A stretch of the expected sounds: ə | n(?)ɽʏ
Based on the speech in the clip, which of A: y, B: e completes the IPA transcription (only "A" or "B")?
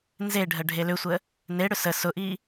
B